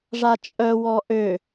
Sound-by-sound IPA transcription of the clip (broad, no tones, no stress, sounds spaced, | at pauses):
ʐ a t͡ʃʼ œ w ɔ ʔ ø